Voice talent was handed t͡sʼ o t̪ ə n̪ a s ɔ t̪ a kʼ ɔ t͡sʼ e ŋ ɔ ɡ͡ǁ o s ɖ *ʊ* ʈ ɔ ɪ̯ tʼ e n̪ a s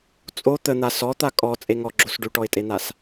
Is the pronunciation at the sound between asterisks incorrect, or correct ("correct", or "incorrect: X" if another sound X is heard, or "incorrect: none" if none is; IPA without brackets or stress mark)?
incorrect: ʉ